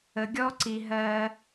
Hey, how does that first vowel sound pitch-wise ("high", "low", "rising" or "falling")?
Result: low